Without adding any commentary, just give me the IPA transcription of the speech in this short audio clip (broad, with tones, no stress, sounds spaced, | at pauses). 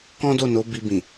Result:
k ɔ̃˦ d o˦˨ n o˨˦ b i˧ b ĩ˨